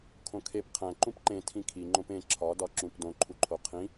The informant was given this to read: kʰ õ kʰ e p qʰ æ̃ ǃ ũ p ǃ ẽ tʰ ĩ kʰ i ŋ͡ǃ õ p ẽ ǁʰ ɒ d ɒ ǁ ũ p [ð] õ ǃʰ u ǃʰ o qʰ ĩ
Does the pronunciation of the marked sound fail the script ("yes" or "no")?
yes